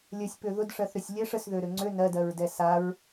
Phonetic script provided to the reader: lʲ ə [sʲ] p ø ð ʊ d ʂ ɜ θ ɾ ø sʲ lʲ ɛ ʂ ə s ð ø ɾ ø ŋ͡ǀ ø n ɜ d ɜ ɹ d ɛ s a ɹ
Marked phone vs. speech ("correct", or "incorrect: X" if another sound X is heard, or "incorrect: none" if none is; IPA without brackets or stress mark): correct